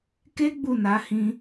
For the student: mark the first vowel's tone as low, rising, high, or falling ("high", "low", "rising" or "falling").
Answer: high